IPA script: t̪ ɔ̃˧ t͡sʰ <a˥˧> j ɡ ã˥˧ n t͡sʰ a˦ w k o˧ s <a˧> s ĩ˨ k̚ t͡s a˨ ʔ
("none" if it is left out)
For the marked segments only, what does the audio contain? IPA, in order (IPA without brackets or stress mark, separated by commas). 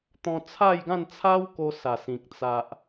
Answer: a˥˧, a˨˩